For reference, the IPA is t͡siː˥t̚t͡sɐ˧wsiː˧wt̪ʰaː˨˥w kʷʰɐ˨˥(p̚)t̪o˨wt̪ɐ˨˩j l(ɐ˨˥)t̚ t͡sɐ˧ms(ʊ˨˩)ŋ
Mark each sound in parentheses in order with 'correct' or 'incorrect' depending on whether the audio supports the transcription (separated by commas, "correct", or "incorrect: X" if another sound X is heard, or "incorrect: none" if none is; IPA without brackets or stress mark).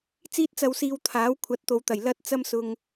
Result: incorrect: t̚, incorrect: ɐ˥, incorrect: ʊ˨